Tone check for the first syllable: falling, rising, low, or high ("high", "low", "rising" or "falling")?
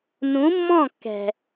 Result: rising